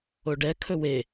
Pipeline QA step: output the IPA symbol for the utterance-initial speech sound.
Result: o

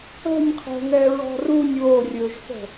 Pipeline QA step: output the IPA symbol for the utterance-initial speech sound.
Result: ə̤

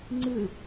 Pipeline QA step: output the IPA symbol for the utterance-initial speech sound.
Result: ŋ͡ǀ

